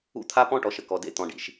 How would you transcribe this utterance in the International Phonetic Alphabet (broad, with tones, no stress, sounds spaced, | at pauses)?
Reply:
ṵ˦ t̪ʰ a˦ p ɔ̃˦ ʈ ɔ˨ ʃ ə˦ k ɔ˨ d ḛ˦ t̪ ɔ̃˨ ɖ ḭ˨ ʃ